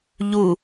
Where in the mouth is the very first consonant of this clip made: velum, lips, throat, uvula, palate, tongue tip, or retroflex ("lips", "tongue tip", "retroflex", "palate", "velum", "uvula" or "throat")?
palate